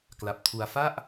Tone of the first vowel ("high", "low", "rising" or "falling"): low